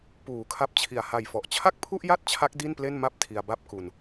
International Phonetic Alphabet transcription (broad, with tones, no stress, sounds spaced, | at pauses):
p uː˩˦ kʰ a˦˥ p̚ t͡ɕʰ i˨˩ a̯ h a˨˩ j f ɔ˨˩ ʔ t͡ɕʰ a˥˩ k̚ pʰ u˥˩ ʔ j a˥˩ t̚ t͡ɕʰ a˦˥ k̚ d i˥˩ n p l e˥˩ n m a˥˩ p̚ tʰ i˧ a̯ b a˥˩ p̚ k u˧ n